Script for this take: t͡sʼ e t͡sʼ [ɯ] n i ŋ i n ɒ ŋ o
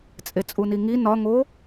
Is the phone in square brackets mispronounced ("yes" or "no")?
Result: yes